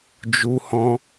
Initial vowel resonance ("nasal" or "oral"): oral